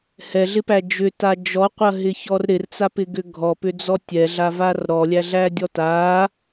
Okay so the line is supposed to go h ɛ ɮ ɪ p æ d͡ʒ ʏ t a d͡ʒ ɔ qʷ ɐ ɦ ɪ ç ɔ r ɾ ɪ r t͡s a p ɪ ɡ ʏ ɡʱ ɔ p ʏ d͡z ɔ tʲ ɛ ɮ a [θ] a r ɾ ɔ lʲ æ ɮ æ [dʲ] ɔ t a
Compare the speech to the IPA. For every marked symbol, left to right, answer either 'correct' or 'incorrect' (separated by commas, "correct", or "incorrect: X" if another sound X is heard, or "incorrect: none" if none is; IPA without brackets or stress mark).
incorrect: v, correct